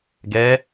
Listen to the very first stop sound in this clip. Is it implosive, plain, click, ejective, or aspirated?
plain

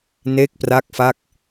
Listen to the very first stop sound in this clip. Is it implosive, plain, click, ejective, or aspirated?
plain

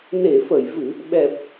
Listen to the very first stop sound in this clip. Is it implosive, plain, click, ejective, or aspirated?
implosive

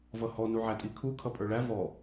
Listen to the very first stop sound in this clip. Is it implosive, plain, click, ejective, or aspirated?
ejective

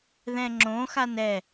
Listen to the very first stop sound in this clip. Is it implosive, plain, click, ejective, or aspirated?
click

